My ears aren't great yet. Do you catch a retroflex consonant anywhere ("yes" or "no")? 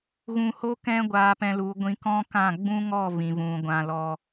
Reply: no